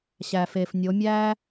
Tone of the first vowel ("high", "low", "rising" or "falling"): low